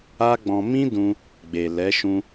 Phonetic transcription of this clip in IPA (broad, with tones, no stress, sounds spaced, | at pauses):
a˦ ɡ͡b ɔ̃˧ m ĩ˦ d ũ˧ | ɡ͡b e˨ l ɛ˨˦ ʃ ũ˧